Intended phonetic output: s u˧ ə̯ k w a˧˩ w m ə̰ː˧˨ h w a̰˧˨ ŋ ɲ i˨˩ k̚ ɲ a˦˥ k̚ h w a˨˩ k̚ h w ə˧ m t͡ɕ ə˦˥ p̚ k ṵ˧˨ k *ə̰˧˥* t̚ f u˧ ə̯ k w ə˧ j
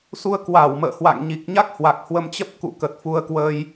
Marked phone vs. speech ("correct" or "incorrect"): incorrect